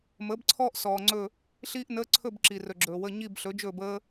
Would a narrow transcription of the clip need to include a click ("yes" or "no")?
yes